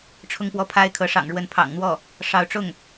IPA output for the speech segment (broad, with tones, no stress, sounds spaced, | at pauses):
ʈ͡ʂʰ ʊ˥˧ ŋ p w ɔ˥˩ pʰ a˥ ɪ̯ kʰ ɤ˧˥ ʂ ɑ̰˨˩ ŋ ɻ w ə˧˥ n pʰ ɑ̰˨˩ ŋ n̪ w ɔ˥˩ | ʂ ɑ˧˥ ʊ̯ ʈ͡ʂ ʊ˥˩ ŋ